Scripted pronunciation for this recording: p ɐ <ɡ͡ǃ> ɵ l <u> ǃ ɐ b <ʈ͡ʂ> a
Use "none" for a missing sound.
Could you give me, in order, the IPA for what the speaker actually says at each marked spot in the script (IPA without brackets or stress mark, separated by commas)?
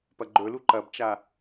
ɡ͡ǃ, u, t͡ʃ